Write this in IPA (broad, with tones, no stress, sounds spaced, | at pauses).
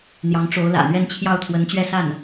n̪ j ɑ˧˥ ŋ ʈ͡ʂ o˧˥ ʊ̯ l ä̰˨˩ n̪ ɥ ɛ˥˧ n t͡ɕʰ j ɑ˥˩ ʊ̯ t̪ʰ w ə˧˥ n t͡ɕ ɥ ɛ˥˧ s a˥˩ n